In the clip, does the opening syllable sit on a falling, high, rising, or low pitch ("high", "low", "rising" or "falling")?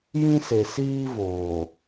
high